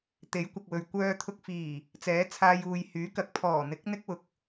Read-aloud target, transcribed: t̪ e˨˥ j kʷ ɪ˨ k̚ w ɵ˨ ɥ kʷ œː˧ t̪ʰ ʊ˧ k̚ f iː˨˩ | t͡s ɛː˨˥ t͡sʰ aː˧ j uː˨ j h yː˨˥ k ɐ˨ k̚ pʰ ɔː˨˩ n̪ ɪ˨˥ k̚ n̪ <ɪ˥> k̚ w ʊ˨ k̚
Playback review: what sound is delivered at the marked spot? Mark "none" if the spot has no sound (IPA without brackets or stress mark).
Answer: ɪ˥